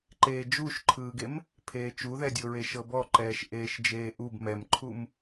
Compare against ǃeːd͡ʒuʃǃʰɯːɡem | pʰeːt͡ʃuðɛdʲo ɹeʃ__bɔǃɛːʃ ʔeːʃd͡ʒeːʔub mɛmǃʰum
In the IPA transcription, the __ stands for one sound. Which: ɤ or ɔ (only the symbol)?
ɤ